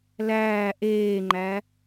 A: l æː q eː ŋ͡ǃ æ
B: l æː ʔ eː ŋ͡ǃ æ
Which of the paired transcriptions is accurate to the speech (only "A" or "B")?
B